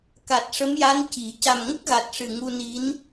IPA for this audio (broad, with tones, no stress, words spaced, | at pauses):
ka˨˩t̚ʂə˧˥mja˧˥n ci˨˩˦ ca˨˩mŋə˦˥k̚ɣa˨˩t̚ ʂɨ˨˩ŋu˧ni˧˥n